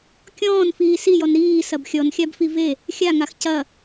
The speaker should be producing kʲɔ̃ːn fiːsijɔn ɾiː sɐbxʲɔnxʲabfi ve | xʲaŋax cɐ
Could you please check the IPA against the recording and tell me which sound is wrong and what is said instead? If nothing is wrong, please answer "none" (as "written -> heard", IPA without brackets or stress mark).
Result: none